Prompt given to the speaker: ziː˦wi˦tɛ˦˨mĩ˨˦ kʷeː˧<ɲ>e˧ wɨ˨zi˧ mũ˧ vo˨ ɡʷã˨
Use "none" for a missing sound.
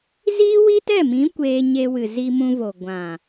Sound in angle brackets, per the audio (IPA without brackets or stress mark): ɲ